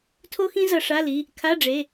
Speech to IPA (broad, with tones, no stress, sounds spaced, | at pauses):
tʰ o˥ x ĩ˥ z ʌ˧ ʂ a˧˥˧ l i˩˧˩ | kʰ a˧˥˧ ɖ͡ʐ e˩˧˩